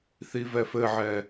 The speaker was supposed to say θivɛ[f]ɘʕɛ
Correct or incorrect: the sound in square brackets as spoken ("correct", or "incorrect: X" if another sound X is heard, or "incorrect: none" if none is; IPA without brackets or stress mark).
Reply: correct